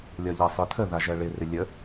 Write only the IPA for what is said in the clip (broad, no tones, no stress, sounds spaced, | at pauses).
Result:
lʲ ɒ ʎ a sˤ i tʰ ə ð a ʒ ɜ ɭ ɪ r ɪ lʲ ə